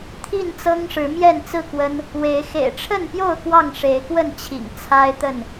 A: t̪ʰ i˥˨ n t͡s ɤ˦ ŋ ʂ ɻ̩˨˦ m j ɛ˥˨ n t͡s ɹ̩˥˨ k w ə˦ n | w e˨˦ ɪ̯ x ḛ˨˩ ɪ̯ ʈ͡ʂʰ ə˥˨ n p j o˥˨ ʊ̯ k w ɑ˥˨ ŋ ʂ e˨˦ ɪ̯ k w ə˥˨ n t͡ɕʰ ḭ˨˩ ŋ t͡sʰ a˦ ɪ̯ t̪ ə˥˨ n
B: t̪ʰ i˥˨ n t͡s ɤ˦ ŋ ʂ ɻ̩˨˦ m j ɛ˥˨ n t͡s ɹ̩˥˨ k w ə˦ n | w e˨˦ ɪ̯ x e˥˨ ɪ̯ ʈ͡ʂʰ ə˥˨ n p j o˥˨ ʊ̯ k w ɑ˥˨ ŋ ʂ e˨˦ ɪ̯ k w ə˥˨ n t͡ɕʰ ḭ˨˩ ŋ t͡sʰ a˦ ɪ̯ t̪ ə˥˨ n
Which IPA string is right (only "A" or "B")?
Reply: A